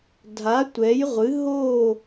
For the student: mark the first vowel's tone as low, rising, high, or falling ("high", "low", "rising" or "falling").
rising